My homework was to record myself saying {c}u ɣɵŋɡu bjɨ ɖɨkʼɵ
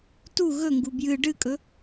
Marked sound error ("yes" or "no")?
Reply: yes